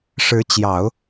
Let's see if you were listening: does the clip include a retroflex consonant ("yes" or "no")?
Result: yes